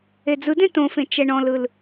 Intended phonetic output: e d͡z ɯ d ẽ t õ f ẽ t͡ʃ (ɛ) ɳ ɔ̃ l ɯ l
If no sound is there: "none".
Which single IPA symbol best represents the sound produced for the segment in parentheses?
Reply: ɛ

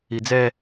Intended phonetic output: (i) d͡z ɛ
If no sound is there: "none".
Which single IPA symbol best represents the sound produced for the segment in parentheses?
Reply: i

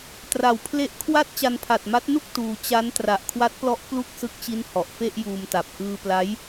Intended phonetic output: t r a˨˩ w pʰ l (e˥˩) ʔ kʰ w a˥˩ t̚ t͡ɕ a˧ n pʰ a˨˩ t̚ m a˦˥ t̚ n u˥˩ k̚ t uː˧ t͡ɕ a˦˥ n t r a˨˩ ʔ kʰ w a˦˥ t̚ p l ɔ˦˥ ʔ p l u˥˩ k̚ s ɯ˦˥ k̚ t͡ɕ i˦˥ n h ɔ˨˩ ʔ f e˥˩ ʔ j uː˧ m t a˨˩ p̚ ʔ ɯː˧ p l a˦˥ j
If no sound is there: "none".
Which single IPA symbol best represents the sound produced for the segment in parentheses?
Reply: e˦˥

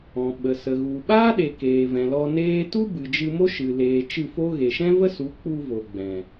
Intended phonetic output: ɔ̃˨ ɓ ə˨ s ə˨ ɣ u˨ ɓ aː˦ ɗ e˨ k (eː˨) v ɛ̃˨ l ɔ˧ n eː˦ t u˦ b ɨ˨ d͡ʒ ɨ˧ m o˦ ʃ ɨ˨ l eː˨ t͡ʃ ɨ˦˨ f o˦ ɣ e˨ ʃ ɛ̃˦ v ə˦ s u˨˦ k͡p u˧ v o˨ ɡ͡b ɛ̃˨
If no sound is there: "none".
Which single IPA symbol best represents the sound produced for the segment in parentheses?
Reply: eː˨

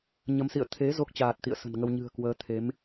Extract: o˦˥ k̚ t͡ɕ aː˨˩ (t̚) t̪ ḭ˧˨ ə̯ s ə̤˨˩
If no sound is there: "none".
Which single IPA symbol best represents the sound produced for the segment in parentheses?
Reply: t̚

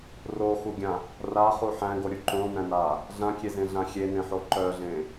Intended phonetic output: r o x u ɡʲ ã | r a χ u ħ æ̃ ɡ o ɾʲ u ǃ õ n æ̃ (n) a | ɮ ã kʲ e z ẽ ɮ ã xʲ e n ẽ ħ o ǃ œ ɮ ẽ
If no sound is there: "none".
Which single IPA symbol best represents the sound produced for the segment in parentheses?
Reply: n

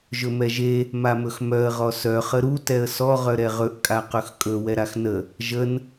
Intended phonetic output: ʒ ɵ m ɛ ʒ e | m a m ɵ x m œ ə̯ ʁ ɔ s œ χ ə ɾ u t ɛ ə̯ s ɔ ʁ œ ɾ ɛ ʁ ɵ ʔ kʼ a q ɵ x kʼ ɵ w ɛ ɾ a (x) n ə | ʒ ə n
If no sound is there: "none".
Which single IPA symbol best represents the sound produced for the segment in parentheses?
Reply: x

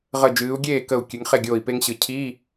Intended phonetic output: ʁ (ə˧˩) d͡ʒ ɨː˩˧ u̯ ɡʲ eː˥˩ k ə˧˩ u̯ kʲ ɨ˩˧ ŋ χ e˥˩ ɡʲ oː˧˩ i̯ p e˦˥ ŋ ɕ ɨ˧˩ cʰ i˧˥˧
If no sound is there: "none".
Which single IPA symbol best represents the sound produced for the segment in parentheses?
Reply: ə˧˩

